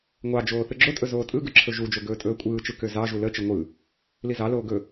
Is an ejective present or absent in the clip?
present